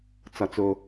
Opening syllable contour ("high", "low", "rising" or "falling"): low